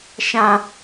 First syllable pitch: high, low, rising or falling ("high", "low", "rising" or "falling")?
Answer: high